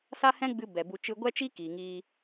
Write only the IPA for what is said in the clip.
sa˦hɛ̃˦ɡ͡bɨ˧ bɛ˨bu˧ t͡ʃɨ˧ɡʷɛ˦t͡ʃi˦ kiː˨ŋiː˧

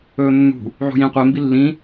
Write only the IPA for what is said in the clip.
ɵːnːṳ | ʕṳjĩ qʷe mbilːĩ

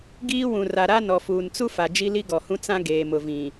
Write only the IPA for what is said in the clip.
ɡiː˦ wũ˨ra˨ɾa˦ nɔ˨fuː˨nt͡su˦fa˨ d͡ʒi˦li˦ɡɔ˨hũ˦ t͡sã˦ɡeː˨ mʊ˨vĩ˨

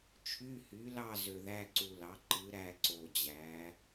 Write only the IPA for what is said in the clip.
t͡ʃʰy˧˥˧hy˩˥lɑ˥˨ zø˨ðæ˧˥˧ǀu˨lɑ˩˥ ǃɯ˩˥ ɾæ˥˨ǀo˨d͡ʑæ˩˥

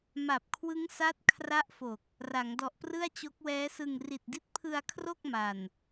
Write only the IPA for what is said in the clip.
ma˨˩p̚kʰwɯ˦˥ŋsa˦˥t̚ kʰra˦˥ʔfo˨˩k̚ | ra˩˦ŋdɔ˨˩ʔprɯ˥˩a̯ t͡ɕo˦˥k̚wɛː˦˥sɯ˧ŋ ri˨˩t̚di˦˥t̚pʰɯ˧a̯kʰro˥˩k̚ ma˨˩n

